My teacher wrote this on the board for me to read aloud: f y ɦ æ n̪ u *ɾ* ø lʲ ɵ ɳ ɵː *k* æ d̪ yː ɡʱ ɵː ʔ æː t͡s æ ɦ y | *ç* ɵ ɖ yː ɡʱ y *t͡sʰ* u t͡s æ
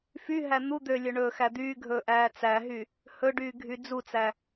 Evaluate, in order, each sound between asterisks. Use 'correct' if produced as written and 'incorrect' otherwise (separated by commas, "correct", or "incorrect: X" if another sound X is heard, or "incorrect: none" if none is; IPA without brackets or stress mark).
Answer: incorrect: d̪, incorrect: x, incorrect: h, incorrect: d͡z